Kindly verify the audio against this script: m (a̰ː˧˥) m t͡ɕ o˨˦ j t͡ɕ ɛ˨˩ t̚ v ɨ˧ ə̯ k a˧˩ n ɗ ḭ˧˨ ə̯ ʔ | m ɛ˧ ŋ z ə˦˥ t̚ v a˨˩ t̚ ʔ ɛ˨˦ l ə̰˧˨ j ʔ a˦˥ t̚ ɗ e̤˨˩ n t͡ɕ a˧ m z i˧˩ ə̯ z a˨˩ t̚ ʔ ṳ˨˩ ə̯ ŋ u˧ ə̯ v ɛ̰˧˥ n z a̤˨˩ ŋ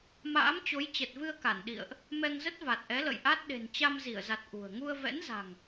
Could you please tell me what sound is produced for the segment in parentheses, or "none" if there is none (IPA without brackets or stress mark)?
a̰ː˧˥